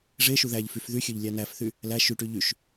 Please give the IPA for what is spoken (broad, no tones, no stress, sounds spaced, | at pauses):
ʐ e ʃ u ð æ ʎ f y f ð y xʲ ø ʎ lʲ æ n æ f θ y | l æ ʃ y ʈ y ʎ y ʃ